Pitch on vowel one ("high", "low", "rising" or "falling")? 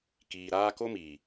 low